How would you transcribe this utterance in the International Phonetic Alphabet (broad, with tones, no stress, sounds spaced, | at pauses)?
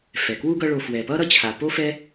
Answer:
f ɛ˩ k w u˥ ɡ ʌ˦ ɭ o˨ f w ɛ˩ p ʌ˥ ɾ ʌ˥ t͡ɕʰ a˩ p o˥ f ɛ˥